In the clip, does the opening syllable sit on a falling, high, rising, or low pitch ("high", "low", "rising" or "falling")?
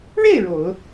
falling